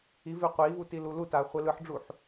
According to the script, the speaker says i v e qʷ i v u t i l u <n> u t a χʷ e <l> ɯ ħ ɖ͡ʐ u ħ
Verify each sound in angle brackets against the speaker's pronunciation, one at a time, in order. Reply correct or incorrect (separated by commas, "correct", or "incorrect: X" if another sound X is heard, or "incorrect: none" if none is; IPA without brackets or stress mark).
incorrect: l, correct